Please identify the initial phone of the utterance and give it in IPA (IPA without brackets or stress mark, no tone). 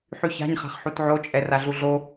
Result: ħ